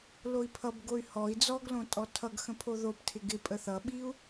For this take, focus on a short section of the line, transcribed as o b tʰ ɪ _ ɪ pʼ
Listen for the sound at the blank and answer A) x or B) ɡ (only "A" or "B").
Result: B